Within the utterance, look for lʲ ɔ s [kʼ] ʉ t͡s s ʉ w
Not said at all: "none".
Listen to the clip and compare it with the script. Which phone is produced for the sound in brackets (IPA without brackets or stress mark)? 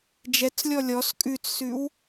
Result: kʼ